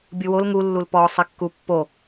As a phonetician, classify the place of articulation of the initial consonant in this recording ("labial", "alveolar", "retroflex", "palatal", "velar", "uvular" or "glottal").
labial